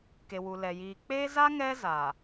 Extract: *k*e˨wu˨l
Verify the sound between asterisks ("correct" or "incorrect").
correct